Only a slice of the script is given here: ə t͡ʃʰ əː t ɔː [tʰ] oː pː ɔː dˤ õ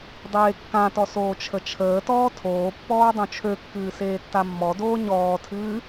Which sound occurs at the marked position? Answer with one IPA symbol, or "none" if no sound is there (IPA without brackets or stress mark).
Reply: tʰ